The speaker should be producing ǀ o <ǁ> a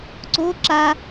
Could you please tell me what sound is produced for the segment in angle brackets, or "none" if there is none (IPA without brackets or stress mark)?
ǁ